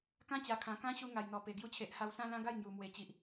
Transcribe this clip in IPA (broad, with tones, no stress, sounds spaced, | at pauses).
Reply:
k ã˦ t͡ɕ a˨˩ kʰ ã˨˩ k ã˦ ɕ u˧ ŋ a˨˩ j n̪ ɔ˨˩ p e˨˩ ɡ j u˧ t͡ɕʰ e˨ ʔ h a˧ w s ã˦ l ã˦ ɡ a˥˧ j ŋ j u˨˩ m w e˨˩ t͡ɕ i˨ ʔ